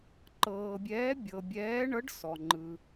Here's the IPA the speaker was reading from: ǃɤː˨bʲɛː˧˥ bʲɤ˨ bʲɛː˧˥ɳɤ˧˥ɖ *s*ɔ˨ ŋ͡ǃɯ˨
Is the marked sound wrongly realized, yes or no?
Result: no